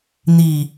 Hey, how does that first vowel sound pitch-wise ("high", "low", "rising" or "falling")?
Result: low